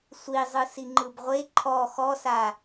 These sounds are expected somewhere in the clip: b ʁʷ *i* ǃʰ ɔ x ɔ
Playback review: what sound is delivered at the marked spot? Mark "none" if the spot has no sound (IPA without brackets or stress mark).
e